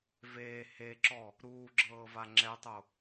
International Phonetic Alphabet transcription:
v eː h e ǁ ɔ | ɾ uː ɡ͡ǁ ɤː v a ŋ͡ǁ ɛ tˤ o

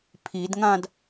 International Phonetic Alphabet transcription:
pʰ i d ŋ ã d

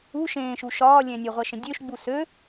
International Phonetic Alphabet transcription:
u ʃ ẽː ʃ u ʃ ɒː lʲ ɛ̃ nʲ ø ʁʷ ɛ ʃ ẽ dʲ ø ʃ ɡ͡b u s ø

